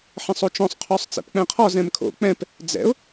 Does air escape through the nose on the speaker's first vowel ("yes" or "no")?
yes